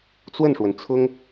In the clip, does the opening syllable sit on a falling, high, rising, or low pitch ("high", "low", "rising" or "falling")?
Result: falling